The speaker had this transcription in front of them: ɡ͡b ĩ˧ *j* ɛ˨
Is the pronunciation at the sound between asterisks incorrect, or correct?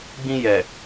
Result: correct